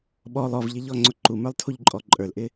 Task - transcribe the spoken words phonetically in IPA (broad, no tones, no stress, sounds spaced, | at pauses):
ɓ ɔ lˠ ɔ v ʎ ɪ ʎ ɔ ŋ͡ǀ ʊ ǃ u m ə˞ lˠ tʰ u ʎ ǃʼ ɔ ǃʼ ə˞ l ʔ ɪ